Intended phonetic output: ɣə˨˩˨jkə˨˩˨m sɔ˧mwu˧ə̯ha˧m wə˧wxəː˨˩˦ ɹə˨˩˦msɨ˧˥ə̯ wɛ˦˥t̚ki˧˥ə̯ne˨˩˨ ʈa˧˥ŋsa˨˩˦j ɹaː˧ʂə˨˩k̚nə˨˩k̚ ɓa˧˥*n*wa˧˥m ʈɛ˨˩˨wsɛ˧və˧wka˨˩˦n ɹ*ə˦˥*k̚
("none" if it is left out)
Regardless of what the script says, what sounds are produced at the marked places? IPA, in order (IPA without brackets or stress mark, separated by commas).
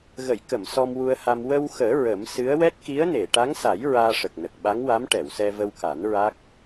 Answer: ŋ, a˦˥